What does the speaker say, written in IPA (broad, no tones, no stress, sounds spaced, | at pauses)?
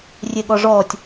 rʲ e ɠ ɔ ʐ ɔː tʲ